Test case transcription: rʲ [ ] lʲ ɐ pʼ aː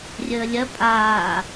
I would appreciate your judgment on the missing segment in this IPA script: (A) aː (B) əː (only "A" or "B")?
B